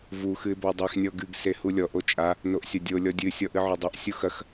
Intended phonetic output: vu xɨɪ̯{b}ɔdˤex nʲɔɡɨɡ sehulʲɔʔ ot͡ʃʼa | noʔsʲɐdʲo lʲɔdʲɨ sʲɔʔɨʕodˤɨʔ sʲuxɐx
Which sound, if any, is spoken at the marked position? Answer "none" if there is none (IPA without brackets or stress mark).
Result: b